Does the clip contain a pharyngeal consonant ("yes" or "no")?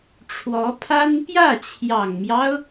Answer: no